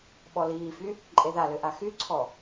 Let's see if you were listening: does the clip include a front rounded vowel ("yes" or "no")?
yes